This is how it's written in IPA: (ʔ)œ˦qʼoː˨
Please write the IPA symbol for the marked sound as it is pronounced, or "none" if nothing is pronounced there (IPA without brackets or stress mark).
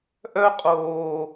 ʔ